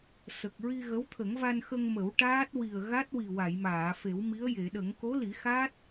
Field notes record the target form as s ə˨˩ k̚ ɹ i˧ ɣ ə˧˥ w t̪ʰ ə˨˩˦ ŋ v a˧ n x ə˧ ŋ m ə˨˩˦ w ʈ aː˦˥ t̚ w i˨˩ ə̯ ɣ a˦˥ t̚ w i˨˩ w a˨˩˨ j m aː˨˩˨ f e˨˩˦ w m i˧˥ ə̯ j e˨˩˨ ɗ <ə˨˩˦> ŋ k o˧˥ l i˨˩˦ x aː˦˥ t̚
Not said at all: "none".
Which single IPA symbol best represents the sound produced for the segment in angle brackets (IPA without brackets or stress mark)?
ə˨˩˦